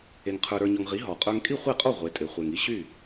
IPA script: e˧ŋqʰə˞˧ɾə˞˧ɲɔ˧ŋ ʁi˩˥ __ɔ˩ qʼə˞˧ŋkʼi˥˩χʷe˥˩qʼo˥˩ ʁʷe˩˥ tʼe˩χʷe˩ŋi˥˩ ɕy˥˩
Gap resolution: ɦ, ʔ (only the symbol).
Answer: ɦ